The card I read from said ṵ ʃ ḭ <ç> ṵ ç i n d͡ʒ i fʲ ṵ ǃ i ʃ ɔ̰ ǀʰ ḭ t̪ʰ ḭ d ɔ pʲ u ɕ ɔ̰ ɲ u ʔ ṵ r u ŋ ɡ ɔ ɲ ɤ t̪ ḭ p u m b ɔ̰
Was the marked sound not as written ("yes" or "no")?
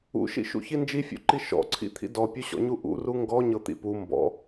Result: yes